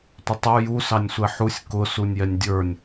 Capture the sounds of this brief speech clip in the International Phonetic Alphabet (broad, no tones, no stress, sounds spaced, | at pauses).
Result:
tʷ ɪ tˤ ə˞ j u s ɑ nʲ sʷ ɛ ħ u sʲ k ʊ s u nʲ j ɛ nʲ dʲ ə˞ nʲ